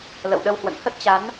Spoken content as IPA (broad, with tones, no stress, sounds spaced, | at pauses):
l ə̰˧˨ w ɗ ə˧ w h w ə̰˧˨ n h ə˦˥ t̚ t͡ɕ a˨˦ n